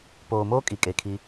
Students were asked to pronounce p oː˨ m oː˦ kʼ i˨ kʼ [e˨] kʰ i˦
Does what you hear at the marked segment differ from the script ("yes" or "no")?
no